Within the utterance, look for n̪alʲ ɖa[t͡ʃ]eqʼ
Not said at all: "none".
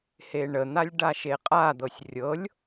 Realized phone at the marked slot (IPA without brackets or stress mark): ʃ